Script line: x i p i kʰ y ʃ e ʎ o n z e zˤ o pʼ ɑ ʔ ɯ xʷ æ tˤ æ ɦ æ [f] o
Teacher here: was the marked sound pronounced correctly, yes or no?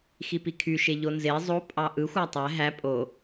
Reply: no